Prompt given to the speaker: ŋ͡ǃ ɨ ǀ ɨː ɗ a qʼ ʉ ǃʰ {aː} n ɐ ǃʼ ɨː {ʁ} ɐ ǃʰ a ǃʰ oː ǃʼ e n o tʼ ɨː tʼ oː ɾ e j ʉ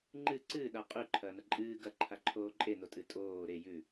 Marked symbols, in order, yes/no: no, no

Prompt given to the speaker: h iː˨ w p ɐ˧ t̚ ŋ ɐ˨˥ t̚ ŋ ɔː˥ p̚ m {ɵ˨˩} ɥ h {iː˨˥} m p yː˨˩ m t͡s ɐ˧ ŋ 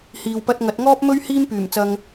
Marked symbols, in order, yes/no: no, no

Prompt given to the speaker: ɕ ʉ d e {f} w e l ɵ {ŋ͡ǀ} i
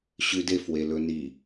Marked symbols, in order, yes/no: yes, no

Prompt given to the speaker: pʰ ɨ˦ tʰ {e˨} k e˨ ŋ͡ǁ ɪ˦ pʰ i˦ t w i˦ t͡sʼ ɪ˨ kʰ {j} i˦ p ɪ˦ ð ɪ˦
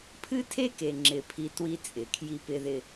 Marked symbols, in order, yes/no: no, yes

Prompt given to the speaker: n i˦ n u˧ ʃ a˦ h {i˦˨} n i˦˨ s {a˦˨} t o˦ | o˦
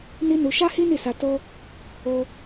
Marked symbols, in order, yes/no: no, no

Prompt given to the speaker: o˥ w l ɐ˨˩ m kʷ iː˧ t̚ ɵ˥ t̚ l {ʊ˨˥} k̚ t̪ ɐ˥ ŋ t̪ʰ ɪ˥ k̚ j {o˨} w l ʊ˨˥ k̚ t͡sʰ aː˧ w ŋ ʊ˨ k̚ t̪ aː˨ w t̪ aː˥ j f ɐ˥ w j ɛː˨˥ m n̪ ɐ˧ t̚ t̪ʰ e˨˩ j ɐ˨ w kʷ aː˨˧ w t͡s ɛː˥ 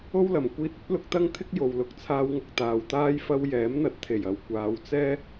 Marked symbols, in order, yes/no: yes, yes

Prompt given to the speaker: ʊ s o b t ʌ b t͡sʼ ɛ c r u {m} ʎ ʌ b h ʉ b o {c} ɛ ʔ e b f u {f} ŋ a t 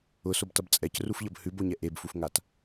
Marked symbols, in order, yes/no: no, no, yes

